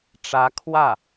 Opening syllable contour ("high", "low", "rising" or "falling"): rising